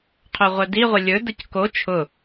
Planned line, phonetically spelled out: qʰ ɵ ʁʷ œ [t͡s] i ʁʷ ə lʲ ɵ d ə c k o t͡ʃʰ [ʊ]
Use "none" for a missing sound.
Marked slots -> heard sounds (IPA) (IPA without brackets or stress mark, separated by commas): d, ʊ